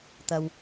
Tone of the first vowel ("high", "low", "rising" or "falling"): low